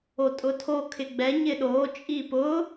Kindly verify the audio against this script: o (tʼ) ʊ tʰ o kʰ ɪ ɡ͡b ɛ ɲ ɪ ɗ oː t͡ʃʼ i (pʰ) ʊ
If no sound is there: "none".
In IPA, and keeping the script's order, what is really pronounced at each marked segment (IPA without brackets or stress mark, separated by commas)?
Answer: tʼ, p